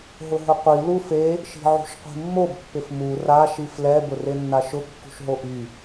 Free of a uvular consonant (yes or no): no